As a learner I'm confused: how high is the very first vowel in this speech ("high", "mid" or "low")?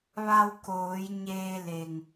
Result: low